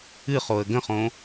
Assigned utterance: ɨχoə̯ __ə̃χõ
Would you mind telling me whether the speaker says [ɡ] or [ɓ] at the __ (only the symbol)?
ɡ